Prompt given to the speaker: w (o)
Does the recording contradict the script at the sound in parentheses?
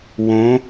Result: yes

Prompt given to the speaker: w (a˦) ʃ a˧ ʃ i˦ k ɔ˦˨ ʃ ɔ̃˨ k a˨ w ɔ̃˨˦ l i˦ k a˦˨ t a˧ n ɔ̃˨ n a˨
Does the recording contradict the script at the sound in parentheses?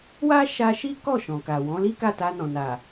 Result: no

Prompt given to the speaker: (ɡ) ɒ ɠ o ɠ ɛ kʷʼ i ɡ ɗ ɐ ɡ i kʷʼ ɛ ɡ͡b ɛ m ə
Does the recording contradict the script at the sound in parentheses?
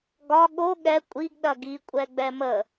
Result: no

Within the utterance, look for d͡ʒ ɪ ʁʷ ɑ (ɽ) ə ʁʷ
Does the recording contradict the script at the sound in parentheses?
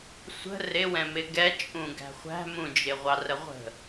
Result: yes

